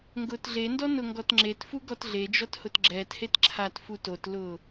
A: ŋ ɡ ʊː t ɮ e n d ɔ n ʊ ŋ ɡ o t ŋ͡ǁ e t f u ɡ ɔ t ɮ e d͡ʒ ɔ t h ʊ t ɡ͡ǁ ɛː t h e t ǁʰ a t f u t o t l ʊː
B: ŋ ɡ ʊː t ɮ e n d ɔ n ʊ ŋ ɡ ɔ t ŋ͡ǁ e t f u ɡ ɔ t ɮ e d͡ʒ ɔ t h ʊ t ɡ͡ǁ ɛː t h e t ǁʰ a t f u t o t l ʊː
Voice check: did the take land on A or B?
B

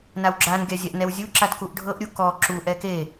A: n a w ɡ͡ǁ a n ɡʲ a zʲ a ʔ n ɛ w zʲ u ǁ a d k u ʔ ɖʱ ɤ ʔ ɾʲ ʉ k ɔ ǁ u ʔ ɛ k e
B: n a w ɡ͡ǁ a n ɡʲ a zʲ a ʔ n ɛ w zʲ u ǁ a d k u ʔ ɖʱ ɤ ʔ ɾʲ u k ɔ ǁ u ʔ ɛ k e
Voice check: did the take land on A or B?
B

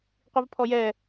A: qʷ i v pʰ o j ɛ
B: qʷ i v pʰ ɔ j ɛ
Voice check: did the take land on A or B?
B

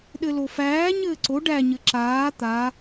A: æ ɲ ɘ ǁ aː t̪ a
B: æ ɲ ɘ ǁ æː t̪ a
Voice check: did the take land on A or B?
A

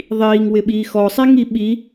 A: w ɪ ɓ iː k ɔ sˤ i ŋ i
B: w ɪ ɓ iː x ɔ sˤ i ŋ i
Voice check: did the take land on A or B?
B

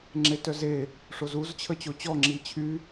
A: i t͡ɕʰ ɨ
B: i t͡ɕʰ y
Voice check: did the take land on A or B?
B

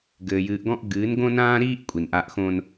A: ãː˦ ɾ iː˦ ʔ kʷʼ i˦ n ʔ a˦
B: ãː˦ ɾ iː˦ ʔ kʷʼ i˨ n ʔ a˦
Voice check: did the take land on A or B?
B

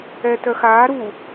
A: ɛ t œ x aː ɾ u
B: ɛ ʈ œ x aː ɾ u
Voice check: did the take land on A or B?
A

